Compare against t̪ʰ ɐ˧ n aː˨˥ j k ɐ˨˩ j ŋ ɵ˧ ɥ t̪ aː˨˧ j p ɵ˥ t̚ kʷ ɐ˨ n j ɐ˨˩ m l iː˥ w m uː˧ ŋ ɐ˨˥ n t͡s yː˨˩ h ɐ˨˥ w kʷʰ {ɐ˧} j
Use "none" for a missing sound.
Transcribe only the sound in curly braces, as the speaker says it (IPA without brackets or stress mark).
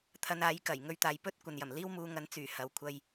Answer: ɐ˧